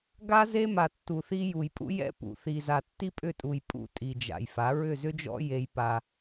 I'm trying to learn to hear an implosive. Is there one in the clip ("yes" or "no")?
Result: no